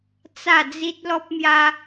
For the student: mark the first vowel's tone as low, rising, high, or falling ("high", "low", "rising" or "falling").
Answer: falling